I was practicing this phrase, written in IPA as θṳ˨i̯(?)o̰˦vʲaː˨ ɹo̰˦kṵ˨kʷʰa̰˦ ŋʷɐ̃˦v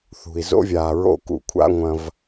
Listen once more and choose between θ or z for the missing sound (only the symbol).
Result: z